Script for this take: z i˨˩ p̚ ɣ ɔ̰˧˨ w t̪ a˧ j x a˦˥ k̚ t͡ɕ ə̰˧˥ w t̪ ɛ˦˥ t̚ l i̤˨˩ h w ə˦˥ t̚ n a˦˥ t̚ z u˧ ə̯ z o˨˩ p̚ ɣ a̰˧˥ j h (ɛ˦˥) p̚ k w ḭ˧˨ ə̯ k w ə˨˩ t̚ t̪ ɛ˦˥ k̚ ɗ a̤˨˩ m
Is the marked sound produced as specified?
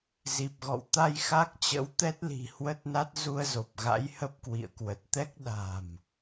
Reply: no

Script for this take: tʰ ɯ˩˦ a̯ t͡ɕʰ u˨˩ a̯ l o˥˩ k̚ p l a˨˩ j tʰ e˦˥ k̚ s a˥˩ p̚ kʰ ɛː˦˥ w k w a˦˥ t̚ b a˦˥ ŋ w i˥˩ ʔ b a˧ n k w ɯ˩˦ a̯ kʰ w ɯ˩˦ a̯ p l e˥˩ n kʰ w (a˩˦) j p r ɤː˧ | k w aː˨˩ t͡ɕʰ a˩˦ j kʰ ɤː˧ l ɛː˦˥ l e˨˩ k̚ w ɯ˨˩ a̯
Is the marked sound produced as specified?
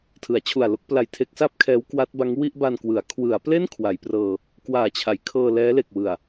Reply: yes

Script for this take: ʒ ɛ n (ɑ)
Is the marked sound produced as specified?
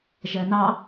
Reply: yes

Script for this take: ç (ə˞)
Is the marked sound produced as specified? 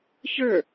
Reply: yes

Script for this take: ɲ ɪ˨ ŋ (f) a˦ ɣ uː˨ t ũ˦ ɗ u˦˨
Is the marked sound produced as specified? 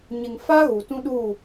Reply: yes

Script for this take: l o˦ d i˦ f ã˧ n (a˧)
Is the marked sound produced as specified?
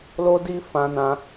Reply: no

